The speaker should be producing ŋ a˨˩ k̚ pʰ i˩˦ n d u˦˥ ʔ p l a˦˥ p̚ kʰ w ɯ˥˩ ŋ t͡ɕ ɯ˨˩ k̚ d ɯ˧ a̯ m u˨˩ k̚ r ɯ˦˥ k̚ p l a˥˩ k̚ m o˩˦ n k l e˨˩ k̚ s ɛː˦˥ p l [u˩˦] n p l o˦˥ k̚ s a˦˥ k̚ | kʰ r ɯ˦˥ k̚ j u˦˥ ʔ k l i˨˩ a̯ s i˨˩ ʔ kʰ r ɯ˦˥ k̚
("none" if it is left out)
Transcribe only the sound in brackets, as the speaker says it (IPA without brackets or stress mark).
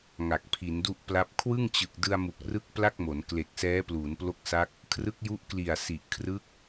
uː˩˦